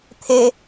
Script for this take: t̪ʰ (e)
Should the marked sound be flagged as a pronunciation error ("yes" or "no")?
no